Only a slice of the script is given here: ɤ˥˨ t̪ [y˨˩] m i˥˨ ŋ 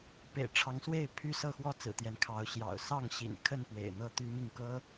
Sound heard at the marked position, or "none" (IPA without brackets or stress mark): y˦